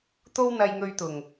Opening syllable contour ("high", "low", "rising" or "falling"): high